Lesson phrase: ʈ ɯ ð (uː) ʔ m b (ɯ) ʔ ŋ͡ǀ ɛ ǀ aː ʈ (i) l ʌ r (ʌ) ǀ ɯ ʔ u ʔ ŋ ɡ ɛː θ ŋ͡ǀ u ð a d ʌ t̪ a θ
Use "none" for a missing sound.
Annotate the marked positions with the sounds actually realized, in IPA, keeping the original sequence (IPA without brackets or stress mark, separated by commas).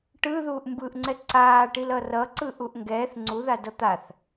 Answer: uː, ɯ, i, ʌ